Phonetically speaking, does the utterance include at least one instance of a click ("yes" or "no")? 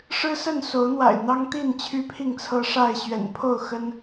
no